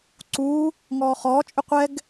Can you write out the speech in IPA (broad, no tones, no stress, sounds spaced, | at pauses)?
ǀ uː | ŋ ɔː χ ɔː t͡ʃʼ ʏ qʷ ɛ ɡ